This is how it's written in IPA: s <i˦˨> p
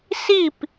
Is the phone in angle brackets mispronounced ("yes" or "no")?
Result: no